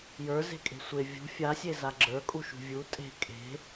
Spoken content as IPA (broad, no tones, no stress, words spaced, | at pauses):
jə˞ze̤kʼe̤ sʷe vʲṳ fʲasʲe zaɡ͡ǁə˞kʼuʃṳ vʲu tʼe̤ kʼe̤